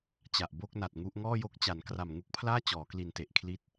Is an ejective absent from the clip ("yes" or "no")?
yes